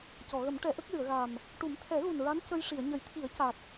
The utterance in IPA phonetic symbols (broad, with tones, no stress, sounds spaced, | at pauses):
c ɔ˨˩˨ ɣ ə˨˩˦ m ʈ ɛ˨˩˦ ʔ ə˦˥ k̚ l ɨ˨˩˨ ə̯ ɣ a˨˩ m | ʈ u˨˩˦ m t̪ʰ ɛ˨˩˦ ɣ u˨˩ n ɹ a˧˥ n c ə˧ j ʂ i˨˩˨ ə̯ ɲ ə˨˩˦ j t̪ʰ i˨˩˦ ə̯ c a˨˩ t̚